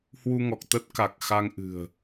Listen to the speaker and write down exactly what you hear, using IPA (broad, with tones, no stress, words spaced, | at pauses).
hwu˧ŋɔ˨˩k̚t̪ə˦˥t̚ ka˨˩k̚xa˧ŋʔɨ̤˨˩ə̯